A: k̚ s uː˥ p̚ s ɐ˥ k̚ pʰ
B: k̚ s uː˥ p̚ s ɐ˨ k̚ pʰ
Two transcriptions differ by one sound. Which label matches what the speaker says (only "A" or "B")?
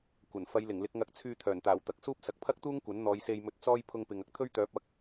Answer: B